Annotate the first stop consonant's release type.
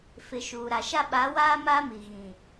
implosive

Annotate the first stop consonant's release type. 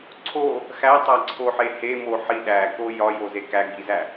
click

